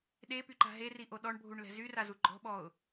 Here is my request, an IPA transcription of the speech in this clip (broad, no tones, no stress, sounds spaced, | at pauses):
ɗ e p y ǃ a̤ ɦ e r i ʔ o ɗ ɔ ɳ bʱ u ɳ l ɛ̤ z y r a z u ɡ͡ǃ ɔ̤ ɓ ɔ ʊ̯